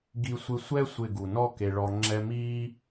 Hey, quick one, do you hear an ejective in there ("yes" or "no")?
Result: no